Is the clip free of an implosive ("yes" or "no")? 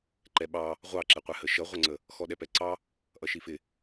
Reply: no